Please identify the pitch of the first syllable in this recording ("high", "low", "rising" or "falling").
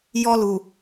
high